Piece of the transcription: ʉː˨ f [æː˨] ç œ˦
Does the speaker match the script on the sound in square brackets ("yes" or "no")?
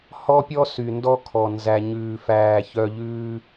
yes